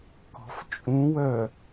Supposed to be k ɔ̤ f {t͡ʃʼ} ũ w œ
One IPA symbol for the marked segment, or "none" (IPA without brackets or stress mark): t͡ʃʼ